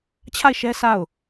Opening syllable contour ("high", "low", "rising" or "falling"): falling